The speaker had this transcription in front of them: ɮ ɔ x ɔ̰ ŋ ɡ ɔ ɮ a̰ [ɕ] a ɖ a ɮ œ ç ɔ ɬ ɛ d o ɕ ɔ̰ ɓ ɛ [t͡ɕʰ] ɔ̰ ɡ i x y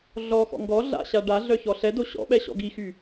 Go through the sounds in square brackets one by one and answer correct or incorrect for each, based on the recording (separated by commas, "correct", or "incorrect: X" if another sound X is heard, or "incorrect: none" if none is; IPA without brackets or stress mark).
correct, incorrect: ɕ